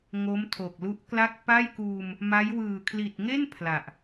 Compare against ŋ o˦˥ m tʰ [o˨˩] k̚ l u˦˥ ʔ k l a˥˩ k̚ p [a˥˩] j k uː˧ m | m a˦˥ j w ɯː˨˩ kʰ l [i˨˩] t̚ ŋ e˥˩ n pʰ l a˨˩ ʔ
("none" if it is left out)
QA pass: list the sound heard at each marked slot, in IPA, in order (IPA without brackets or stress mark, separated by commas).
o˨˩, a˥˩, i˨˩